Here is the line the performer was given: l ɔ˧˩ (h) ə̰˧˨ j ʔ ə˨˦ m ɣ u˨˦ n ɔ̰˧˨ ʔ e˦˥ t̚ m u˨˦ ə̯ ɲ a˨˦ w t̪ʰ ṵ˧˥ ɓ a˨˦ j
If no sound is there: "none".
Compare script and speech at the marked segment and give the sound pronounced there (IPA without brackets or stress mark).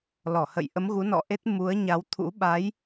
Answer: h